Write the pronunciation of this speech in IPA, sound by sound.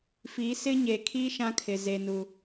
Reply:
f i˨˦ s ɪ˦ ɲ e˨ kʰ i˦ ʃ ã˦ kʰ ɪ˨ z e˨ n u˨

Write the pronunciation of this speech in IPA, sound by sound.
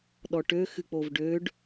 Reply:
ɗ ɔ ʈ ø x ɨ k͡p o v ɖ ø ɖ

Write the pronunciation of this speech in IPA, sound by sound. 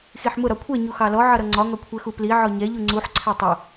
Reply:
x i ħ m ʊ ɾ ɒ kʷʰ ɛ ɲ u x ɑ l ɔ ʕ ʌ ɾ ʌ ŋ͡ǀ ɒ ŋ ɒ kʷʰ ɛ x u p l i ʕ ɔ ɲ ɛ ʎ u ŋ͡ǀ u ħ ǀʰ æ tˤ ʊ

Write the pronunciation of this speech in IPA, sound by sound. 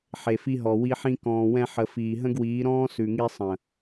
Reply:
ħ e˨ f i˧ ɦ ɔ˨ w i˧ ħ ĩ˧ k ɔ̃ː˨ w ɛ̃˧ ħ ə˨ f iː˨ ɦ ə̃˦ ɡ w iː˨˦ ɾ ɔ̃ː˦ s ʉ˨ ŋ i˧ sˤ ə̃˨

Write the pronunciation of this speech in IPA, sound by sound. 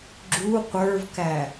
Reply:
ɡ͡ǁ u qʷ ə˞ v k æ

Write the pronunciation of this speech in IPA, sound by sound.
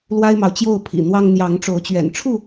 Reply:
l w a˦ ɪ̯ m ɑ˨ ʊ̯ t͡ɕ j o˥˨ ʊ̯ pʰ ḭ˨˩ n̪ w ɑ˦ ŋ n̪ j ɑ˨˦ ŋ ʈ͡ʂ o˨˦ ʊ̯ t͡ɕ ɥ ɛ̰˨˩ n ʈ͡ʂʰ u˥˨

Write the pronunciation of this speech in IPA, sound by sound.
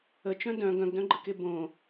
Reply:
ə t͡ʃ œ̃ d œ̃ ɡ œ̃ ɡ d œ̃ ɡ͡ǃ ə k e b õ

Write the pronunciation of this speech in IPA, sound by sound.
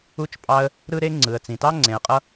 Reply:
u˦ t͡ʃ pʼ ɑ˦ ə̯ | ɾ ɯ˦ ɾ e˦ ŋ͡ǀ ɯ˩ ə̯ t͡s ĩ˩ t ɑ˥ ŋ͡ǀ ẽ˨ ə̯ qʼ ʌ˥

